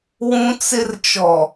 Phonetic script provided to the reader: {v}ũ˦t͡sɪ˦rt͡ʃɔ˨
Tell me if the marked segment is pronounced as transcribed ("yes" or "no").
no